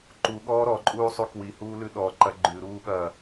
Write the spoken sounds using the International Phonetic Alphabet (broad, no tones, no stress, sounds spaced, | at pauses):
ǃ u ɠ ɔː ɾ ɔ ǃʼ uː sˤ u k w i h uː l ʉ ɗ ɔ ǃ ɐ ɡ͡ǃ ʉ ɾ uː ɠ ɐː